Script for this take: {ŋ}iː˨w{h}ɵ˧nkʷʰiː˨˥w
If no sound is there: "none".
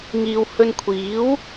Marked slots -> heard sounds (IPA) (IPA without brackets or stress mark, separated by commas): ŋ, h